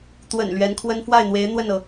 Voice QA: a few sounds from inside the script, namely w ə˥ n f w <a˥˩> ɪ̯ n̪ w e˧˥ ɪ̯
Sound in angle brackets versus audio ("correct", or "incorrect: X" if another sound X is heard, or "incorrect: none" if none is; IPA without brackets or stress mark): correct